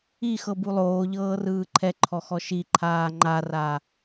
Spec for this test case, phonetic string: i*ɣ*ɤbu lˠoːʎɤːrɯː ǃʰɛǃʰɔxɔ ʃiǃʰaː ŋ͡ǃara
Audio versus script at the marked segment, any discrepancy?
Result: yes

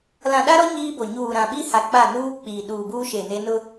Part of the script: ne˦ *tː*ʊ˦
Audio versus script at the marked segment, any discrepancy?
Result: yes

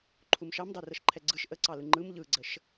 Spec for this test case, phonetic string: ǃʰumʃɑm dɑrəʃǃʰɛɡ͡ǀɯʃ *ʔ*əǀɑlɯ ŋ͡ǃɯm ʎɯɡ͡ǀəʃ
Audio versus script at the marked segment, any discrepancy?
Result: no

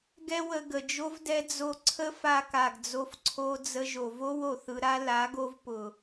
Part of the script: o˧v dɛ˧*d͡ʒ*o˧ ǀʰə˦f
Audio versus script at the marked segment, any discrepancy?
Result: yes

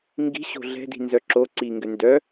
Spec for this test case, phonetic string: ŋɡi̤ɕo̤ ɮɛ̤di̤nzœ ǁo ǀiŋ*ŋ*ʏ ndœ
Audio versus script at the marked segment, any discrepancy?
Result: yes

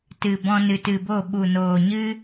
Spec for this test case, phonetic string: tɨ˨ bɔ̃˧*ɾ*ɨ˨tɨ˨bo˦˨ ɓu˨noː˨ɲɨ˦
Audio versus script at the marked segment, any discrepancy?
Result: yes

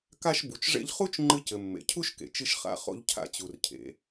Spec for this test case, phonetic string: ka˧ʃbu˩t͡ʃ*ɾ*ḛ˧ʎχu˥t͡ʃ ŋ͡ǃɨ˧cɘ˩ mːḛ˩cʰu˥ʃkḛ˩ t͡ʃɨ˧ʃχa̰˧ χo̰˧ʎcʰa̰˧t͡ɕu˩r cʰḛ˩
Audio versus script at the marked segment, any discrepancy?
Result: yes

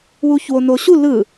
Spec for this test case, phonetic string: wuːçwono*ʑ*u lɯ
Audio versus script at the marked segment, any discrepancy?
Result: yes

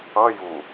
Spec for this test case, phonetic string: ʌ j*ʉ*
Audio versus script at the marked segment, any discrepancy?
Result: yes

